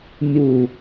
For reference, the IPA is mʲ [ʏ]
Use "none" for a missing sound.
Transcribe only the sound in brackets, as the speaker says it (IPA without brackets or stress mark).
u